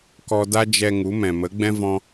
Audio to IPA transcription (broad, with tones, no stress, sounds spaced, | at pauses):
k ɔ˧ d a˦ d͡ʒ ɛ˧ ŋ u˨˦ m ɛ̃˨ m ə˨˦ ɡ͡b ɛ̃˦ v ɔ̃˧